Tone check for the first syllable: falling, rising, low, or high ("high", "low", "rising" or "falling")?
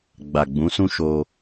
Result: low